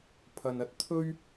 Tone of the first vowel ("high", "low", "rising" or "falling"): low